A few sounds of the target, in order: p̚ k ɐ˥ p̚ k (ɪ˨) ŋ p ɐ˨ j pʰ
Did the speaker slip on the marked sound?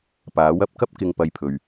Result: no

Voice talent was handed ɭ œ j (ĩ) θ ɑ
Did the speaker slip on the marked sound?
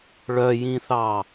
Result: no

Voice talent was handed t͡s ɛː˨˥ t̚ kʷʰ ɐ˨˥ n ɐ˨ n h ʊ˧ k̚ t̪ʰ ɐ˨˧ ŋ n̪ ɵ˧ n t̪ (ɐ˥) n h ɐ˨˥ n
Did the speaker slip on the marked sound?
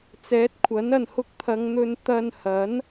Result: yes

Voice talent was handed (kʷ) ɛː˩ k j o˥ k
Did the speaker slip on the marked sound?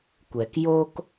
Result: no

